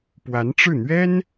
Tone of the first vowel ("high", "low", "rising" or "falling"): rising